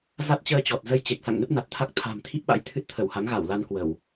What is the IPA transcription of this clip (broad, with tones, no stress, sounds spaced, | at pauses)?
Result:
z a˦˥ t̚ t͡ɕ əː˧ t͡ɕ ɔ˨˩ t̚ z ə˧ j t͡ɕ e˨˩ k̚ s a̰˧˨ ŋ n ə˦˥ p̚ n a˨˩ t̚ t̪ʰ a˦˥ k̚ t̪ʰ a̤˨˩ m t̪ʰ i˦˥ p̚ ɓ a̰˧˥ j t̪ʰ ɨ˦˥ t̚ t̪ʰ ə˧˩ w h a˨˦ ŋ ɣ a˧˩ w l a˧ n k w ə˧˩˨ w